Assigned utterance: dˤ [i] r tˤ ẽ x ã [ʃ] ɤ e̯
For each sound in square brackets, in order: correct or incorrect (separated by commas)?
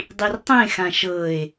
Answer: correct, correct